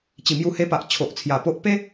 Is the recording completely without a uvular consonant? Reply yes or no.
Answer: yes